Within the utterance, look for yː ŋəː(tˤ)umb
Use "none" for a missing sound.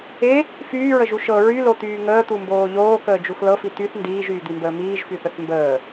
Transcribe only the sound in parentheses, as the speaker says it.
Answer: t̪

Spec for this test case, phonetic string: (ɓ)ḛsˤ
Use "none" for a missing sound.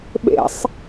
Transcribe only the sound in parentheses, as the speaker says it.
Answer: ɓ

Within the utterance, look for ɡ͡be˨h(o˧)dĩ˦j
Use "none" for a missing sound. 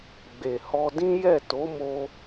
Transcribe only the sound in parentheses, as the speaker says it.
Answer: ɔ˧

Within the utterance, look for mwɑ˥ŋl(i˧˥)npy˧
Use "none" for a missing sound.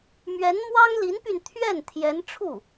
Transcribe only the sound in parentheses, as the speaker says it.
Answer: i˧˥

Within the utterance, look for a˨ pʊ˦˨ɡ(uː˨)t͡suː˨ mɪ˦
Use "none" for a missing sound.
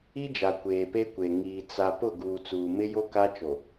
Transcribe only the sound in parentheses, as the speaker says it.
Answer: uː˨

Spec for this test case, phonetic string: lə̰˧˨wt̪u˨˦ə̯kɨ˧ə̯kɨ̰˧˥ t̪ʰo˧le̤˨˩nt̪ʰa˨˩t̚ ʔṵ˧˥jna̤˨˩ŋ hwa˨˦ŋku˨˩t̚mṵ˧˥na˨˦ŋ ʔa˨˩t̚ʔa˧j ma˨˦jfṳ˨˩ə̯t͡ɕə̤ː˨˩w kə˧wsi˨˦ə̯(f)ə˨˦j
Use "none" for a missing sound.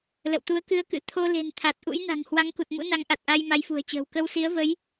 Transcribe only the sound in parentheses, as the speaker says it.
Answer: v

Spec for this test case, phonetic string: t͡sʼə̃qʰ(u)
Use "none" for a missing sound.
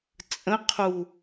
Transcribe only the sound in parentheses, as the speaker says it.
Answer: u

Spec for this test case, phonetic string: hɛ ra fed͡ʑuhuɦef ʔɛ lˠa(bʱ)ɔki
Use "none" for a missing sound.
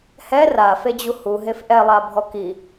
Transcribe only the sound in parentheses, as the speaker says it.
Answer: bʱ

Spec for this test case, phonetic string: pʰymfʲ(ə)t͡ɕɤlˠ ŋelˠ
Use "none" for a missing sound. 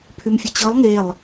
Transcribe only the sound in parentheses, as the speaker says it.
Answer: ə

